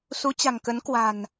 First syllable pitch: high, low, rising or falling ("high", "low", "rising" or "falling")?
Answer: rising